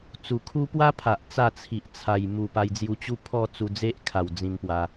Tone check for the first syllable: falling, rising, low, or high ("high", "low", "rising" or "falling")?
low